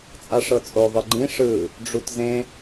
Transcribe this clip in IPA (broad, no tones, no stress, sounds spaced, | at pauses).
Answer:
t͡sʼ a ʂ ɤ t͡sʼ o ðˤ ɯ ɡ͡ǃ ĩ ʂ ɯ | ɖ͡ʐ u t z ẽ